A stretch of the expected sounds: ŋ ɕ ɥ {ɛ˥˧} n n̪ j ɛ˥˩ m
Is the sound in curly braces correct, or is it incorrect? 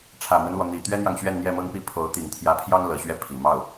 correct